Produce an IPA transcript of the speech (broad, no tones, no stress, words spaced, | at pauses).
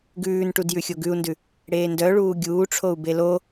ɡʉːnʈud jʉxʲoɡʉu̯ndʉ | ɽeːndœɭuː ɡʲuːʈ͡ʂʰou̯ belo